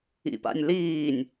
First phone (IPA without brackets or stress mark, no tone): ḭ